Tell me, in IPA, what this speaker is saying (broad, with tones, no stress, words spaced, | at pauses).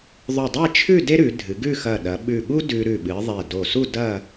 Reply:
ðˤʉ˧˩dˤe˥˧t͡ʃʰʉ˥˧ de˥ɾʉ˩˧dʱɨ˩˧ ɡʉ˥˧ xɐ˧˩ɗɐ˩˧ ɓʉ˧˩ɠu˥ dʉ˧ ɾʉ˧˩ɓɨ˩˧ ðˤe˧˩do˧˩ su˥˧dɐ˥˧